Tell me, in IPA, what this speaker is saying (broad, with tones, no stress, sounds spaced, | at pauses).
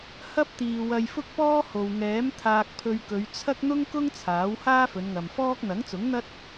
h ɐ˥ p̚ t̪ iː˨ w ɐ˧ j f ʊ˥ k̚ p ɔː˥ h o˨ w ŋ ɛː˨˥ m t̪ʰ aː˧ k̚ pʰ ɵ˧ ɥ k ɵ˨˧ ɥ t͡sʰ ɐ˥ k̚ n̪ ʊ˥ ŋ k ʊ˥ ŋ t͡sʰ aː˨˥ w h aː˥ f ɵ˨˧ n ŋ ɐ˨ m f ɔː˥ k̚ n̪ ɐ˨˥ ŋ t͡s ʊ˨˥ ŋ n̪ ɐ˥ t̚